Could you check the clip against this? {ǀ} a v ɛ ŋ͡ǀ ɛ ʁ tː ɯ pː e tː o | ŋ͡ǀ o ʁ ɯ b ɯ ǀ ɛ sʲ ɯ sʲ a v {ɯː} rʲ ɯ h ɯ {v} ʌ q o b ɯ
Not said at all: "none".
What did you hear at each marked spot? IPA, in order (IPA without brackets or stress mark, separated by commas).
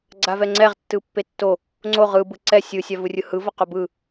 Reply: ɡ͡ǀ, ɯ, v